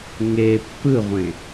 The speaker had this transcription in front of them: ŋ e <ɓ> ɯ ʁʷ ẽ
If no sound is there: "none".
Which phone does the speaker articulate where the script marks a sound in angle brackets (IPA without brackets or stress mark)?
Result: pː